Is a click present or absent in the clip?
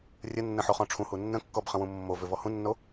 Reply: absent